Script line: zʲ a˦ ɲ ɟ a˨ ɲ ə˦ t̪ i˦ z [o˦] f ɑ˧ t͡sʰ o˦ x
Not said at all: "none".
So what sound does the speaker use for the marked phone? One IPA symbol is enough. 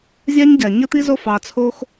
o˦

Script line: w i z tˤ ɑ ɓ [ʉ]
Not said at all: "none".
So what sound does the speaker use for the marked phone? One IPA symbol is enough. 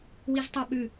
ʉ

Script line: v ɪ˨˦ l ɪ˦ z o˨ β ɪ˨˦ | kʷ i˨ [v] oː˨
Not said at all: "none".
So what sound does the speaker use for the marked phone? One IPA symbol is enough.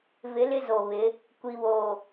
β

